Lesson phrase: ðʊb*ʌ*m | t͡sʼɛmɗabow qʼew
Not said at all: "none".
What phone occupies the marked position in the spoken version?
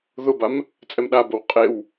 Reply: a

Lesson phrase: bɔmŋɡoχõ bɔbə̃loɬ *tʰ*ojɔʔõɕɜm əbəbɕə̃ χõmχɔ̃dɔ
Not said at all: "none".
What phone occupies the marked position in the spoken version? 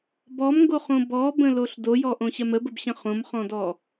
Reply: d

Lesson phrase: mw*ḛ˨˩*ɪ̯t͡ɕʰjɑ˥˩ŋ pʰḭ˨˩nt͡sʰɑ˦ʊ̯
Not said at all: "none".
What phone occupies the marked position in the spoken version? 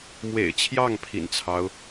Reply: ḛ˨˩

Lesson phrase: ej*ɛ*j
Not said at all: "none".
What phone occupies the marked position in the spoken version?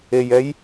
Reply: ɛ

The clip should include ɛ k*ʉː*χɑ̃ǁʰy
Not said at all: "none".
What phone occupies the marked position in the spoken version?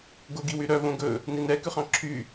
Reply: ʉ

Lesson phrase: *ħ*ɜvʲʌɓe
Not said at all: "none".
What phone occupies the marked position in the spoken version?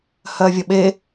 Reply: h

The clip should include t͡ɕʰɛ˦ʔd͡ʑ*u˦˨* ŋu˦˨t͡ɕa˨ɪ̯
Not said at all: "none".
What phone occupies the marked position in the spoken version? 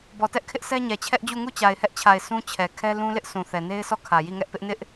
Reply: u˦˨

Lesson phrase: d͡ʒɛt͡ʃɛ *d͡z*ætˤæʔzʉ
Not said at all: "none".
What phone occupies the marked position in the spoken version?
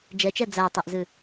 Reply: d͡z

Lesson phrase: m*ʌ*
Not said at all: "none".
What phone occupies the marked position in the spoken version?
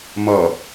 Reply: ʌ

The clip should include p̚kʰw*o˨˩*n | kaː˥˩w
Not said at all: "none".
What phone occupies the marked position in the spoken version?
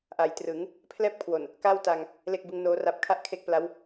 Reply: o˨˩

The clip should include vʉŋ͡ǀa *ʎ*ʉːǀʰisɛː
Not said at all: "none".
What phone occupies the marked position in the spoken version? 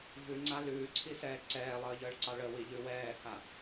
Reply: l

